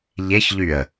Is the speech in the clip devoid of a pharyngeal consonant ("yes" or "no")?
yes